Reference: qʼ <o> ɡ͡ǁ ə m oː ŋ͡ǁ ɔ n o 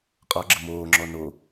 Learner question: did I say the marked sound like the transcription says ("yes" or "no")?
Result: no